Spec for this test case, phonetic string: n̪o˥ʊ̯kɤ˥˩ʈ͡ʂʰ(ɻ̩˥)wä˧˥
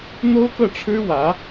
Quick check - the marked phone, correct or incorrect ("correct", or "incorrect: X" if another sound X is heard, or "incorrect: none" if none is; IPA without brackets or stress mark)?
correct